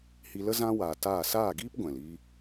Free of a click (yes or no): yes